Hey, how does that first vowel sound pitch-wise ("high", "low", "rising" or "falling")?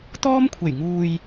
high